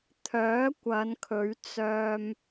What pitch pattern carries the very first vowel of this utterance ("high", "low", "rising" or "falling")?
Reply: rising